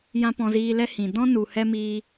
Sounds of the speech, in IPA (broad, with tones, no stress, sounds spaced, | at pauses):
j ã˦ p ɔ̃˧ z iː˧ l ɛ˦ h ĩ˨ d ɔ̃˦ n u˨ h ɛ˦ m iː˧